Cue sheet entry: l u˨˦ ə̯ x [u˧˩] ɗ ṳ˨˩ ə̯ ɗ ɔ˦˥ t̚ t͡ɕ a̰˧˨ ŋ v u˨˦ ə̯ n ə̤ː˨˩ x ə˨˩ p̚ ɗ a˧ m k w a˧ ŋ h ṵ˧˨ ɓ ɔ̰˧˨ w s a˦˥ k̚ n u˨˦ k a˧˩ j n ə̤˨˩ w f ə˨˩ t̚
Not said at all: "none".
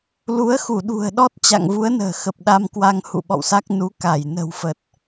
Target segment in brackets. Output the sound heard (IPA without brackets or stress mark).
u˧˩